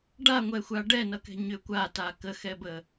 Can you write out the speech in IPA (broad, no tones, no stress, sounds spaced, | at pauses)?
ɖ a ŋʷ ɛ xʷ a ɖ ɛ n ʌ k ɛ̤ ɲ ʏ kʷ a t a k ə x ɛ b ə